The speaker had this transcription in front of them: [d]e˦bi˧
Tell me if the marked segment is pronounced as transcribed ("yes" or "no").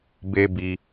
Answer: no